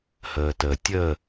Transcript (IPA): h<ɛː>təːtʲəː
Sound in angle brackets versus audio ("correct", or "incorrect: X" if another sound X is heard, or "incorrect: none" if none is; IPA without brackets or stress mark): incorrect: əː